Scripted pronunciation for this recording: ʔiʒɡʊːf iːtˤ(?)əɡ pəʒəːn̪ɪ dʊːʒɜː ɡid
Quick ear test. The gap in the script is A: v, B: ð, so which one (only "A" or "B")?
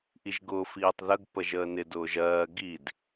B